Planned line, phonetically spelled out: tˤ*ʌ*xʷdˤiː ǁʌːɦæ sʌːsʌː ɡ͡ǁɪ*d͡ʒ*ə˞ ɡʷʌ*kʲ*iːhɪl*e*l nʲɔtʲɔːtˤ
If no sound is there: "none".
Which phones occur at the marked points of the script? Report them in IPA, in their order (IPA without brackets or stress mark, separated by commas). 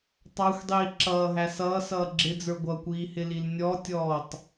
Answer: ɑ, d͡z, kʷ, i